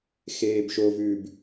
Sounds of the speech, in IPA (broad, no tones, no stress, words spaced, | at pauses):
xeːbʃovʉːb